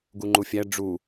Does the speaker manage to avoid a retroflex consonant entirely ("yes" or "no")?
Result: no